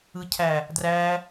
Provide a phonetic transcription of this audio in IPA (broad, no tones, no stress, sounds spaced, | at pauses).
ɯ cʰ æ | d r æ